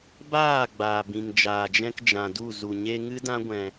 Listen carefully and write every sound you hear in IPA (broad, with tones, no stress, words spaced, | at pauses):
baː˦˨ ɡ͡baː˨bĩ˨ŋ d͡ʒaː˨d͡ʒɛ̃˧k d͡ʒã˨du˦˨ zu˨ɲe˧ ŋɨ˦dã˦ɡʷɛ̃˧